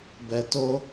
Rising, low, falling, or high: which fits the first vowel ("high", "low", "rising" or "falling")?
low